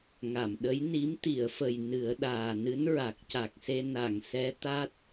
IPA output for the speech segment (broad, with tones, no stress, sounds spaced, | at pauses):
ŋ a˨˩˨ m ɗ ə˧˥ j n i˧˥ m t̪ i˨˩˨ ə̯ f ə˨˩ j n ɨ˨˩˦ ə̯ ɗ aː˨˩ n ɨ˧˥ n ɹ a˨˩ k̚ c a˨˩ k̚ s e˧ n a˨˩˨ ŋ s ɛ˧˥ t̪ a˦˥ t̚